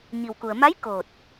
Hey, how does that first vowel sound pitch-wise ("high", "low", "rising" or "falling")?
low